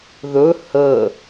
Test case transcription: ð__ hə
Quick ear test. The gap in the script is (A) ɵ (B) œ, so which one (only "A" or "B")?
A